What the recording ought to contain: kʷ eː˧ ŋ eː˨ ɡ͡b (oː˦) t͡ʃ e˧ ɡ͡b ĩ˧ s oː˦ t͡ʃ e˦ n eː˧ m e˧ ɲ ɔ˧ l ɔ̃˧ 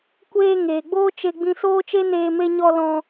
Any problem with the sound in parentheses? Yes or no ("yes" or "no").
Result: no